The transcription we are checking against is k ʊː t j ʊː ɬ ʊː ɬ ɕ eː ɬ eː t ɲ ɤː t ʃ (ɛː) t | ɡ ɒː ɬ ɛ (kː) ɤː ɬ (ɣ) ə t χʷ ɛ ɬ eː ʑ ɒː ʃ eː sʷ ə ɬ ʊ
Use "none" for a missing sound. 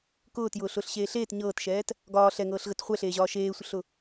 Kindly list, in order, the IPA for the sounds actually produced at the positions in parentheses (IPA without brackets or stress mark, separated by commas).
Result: ɛː, ŋ, ɣ